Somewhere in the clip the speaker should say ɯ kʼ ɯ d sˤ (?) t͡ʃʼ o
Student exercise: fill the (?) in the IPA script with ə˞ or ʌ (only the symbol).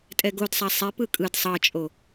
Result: ʌ